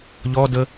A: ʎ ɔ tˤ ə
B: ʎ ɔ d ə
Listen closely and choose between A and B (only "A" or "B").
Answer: B